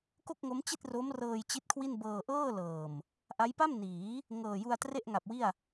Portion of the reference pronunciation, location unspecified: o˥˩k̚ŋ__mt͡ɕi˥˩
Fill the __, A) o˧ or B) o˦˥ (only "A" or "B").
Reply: B